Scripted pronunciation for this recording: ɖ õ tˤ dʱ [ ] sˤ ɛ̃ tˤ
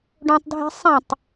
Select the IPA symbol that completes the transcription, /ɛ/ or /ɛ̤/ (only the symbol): ɛ̤